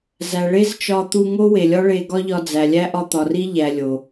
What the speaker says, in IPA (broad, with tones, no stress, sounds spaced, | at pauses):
z æ˨ ɭ e˦ z t͡ʃ ɒ˧ t̪ u˧ ŋ o˦ w e˨ lʲ ɒ˦ ɭ e˧ ɡ ɒ˦ ʎ ɒ˧ d͡z æ˨ lʲ æ˦ ʔ ɒ˧ t̪ ɒ˨ r i˦ ʎ æ˨ lʲ o˨